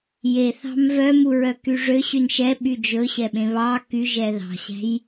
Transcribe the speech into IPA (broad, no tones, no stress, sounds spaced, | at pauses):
j e θ ɑ̤ m v œ m u ɹ œ k y ʐ ø ɕ y n ʃ ɛ ɓ y d͡ʒ ɵ ɕ ɛ ɓ ẽ β ɑ k y ʒ ɛ ð ɑ̤ ɕ æ̤ j